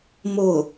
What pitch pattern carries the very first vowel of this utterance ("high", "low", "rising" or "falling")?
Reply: falling